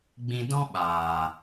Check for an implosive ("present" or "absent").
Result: present